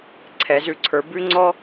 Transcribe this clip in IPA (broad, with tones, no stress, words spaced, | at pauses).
ǀʰɛ˩˧zʉ˩˧ǀʰə˞˩˧ bʉ˦ŋ͡ǀɔ˦